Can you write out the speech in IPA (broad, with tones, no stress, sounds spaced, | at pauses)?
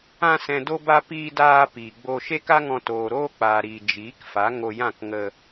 ã˧ s ɛ̃˨ d o˧ b a˧ p iː˧ d aː˧ p iː˨ ɡ͡b o˧ ʃ e˦ k a˦ ŋ ɔ̃˧ t oː˨ ɾ oː˦ k͡p aː˨ ɾ iː˨ d͡ʒ iː˨˦ k f a˨˦ ŋ o˧ j ã˦˨ k ŋ ə˧